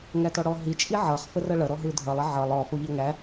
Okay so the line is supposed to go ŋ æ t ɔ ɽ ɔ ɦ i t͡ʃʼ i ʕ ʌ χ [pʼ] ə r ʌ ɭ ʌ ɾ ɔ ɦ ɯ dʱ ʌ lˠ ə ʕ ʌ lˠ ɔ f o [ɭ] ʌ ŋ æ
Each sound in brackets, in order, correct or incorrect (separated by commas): incorrect, incorrect